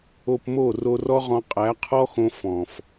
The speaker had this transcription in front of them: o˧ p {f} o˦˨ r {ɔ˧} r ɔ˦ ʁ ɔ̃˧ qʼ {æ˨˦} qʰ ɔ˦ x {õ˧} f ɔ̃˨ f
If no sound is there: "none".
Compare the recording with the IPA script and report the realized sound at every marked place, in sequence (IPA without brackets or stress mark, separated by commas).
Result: m, o˧, æ˨˦, õ˧